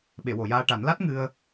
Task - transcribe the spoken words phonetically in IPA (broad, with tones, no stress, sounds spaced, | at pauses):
ɓ e˨˩˨ w o˨˩˨ j aː˧ ʈ a˨˩˦ n l a˦˥ t̚ ŋ ɨ˧ ə̯